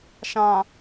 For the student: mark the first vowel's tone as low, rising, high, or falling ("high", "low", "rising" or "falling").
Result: low